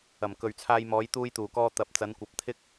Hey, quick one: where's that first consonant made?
lips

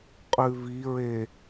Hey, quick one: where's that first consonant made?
uvula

